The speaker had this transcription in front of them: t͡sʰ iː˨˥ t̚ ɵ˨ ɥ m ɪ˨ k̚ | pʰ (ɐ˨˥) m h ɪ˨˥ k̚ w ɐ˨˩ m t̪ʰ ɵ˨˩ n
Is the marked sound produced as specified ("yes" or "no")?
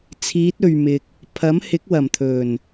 yes